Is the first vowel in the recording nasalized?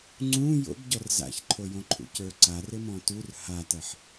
yes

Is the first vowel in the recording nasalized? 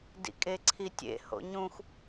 no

